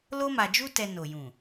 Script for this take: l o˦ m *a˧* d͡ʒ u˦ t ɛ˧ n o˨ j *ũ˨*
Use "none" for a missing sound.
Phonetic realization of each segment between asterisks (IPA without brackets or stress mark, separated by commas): a˧, ũ˨